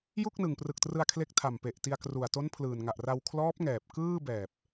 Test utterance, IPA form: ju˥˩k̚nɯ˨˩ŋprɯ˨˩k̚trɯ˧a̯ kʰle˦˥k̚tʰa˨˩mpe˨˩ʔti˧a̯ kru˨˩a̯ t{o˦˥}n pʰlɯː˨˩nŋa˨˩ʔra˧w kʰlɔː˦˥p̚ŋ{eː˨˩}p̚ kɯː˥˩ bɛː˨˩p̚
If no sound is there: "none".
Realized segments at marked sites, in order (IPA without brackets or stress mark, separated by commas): o˦˥, ɛː˨˩